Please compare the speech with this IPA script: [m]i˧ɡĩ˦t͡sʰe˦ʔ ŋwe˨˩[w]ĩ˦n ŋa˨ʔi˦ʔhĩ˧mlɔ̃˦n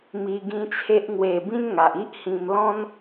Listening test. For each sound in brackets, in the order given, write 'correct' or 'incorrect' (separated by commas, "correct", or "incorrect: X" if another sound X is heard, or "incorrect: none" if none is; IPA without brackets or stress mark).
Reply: correct, incorrect: b